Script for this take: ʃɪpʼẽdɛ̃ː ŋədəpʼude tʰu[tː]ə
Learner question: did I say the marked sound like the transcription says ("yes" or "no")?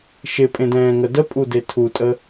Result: no